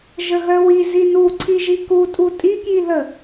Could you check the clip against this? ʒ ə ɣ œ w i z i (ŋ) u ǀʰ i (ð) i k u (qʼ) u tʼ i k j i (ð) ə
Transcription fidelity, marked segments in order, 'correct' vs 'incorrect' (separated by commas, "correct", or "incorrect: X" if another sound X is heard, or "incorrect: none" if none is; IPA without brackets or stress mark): incorrect: n, incorrect: ʒ, incorrect: tʼ, correct